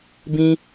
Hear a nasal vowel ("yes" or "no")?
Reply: yes